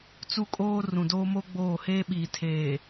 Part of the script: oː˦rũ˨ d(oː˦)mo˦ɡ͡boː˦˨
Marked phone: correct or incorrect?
correct